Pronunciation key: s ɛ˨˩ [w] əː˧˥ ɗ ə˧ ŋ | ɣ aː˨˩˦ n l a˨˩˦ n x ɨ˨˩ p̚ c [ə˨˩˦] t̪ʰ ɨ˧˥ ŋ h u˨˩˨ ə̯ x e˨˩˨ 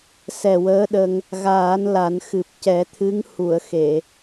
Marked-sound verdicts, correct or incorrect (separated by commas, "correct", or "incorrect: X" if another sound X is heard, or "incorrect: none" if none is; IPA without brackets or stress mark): correct, incorrect: ɛ˨˩˦